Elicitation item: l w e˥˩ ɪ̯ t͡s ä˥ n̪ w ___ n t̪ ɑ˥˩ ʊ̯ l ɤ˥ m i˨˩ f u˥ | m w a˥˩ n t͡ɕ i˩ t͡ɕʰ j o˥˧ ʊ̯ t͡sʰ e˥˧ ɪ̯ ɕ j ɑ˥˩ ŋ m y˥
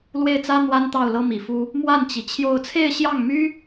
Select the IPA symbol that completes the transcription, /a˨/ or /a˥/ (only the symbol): a˥